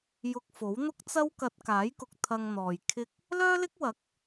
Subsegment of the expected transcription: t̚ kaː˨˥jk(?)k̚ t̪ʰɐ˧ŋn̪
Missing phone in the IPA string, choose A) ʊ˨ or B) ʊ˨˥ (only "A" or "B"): A